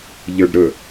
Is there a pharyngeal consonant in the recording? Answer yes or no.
no